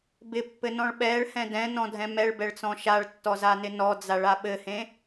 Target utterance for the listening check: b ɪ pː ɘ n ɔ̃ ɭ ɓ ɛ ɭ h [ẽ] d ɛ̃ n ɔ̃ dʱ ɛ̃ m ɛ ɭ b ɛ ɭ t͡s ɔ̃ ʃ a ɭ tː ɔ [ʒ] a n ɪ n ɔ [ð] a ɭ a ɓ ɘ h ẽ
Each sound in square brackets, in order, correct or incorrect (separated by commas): incorrect, incorrect, incorrect